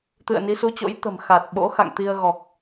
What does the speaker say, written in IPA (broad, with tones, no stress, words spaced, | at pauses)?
t̪ɨ̰˧˨ə̯ni˨˦su˨˦t͡ɕo̰˧˥j t̪ə̤˨˩m xa˨˩t̚ ɓo̰˧˥xa̰˧˨ŋt̪i˧ə̯ɣɔ˨˩k̚